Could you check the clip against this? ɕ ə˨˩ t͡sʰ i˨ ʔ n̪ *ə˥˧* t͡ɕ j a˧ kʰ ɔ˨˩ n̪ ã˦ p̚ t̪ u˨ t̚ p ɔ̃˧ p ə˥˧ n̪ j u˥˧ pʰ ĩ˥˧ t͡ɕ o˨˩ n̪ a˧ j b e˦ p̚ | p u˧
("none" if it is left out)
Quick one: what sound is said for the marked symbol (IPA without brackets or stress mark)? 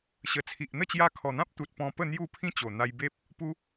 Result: ə˥˧